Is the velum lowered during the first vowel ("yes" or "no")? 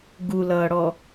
no